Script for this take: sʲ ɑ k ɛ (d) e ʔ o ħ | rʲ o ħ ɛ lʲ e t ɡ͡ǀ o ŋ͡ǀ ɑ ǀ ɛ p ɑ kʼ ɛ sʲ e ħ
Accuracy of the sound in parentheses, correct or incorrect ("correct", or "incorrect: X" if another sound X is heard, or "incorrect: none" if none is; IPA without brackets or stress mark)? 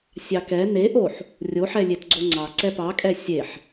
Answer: incorrect: n